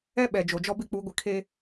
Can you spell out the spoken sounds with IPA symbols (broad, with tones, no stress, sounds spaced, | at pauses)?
ɛ˦ ɓ ɛ˨ d͡ʒ o˨ d͡ʒ ɔ˦ b ɪ˦ k͡p u˨˦ ɡʷ ɪ˨ kʰ e˦